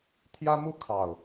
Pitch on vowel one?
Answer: high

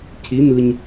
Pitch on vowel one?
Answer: rising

